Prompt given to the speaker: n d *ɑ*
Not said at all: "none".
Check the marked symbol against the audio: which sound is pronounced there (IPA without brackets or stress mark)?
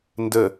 ə